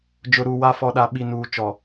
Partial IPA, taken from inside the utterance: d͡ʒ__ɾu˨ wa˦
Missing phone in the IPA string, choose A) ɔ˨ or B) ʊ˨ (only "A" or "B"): B